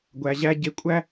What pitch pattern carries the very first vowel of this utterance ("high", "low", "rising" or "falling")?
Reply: low